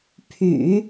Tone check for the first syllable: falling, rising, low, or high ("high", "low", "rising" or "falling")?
low